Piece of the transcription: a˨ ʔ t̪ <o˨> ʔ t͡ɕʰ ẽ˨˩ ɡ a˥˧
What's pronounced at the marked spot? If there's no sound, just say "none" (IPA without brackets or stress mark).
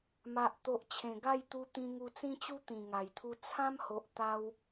o˨